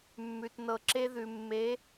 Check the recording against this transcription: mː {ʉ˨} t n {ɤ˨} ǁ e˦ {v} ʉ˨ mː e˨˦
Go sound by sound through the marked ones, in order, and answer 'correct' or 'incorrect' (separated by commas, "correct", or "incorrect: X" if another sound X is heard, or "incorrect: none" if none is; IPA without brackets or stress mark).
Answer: correct, correct, incorrect: ð